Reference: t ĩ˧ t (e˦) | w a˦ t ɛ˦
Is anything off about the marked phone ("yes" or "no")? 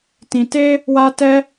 no